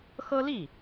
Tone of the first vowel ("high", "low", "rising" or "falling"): high